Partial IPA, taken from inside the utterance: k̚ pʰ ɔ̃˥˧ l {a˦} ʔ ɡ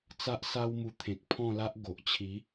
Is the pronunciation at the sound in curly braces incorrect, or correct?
correct